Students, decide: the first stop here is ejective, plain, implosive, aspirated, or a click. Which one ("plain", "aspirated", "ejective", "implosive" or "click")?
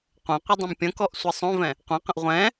plain